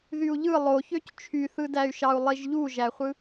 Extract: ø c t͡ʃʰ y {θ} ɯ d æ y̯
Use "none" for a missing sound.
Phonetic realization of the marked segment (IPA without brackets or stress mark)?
θ